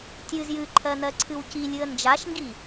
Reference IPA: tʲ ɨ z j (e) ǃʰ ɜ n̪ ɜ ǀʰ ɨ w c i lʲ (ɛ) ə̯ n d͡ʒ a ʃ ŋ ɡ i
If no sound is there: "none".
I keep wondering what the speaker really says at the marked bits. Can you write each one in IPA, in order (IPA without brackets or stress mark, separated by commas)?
ɨ, ɨ